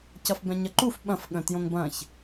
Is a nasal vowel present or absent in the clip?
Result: present